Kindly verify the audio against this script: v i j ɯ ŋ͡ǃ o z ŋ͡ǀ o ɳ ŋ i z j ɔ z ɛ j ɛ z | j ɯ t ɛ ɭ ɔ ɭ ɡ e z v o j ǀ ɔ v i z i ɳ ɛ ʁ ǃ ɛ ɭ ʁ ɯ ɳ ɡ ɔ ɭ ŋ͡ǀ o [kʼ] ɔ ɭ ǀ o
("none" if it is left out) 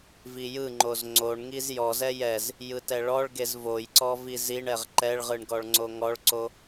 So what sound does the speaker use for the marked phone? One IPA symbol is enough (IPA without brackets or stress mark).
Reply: ŋ